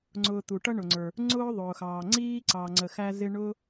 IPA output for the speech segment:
ŋ͡ǀ ʊː˨ t̪ u˩ ʈ ʌ˦ ɳ ʊ˩ ŋ͡ǀ ə˞˩ | ŋ͡ǀ ʊː˥ ðˤ ʊː˩ x ɑː˩ ŋ͡ǀ iː˥ ǀ ɑ˨ ŋ͡ǀ ə˨ x æ˦ z ɪ˦ ɳ ʊː˥

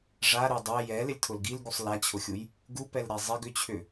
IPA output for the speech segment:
ʐ a ɾ ø dˤ ɛ j ɛ l ɪ lʲ tʰ ʊ l ɡ i l ɡ u sˤ l a t͡ɕʰ ʊ xʲ u j | ɡ u p ɛ l ɾ ɛ zˤ ɪ ɡ ʏ t͡ɕʰ ʏ

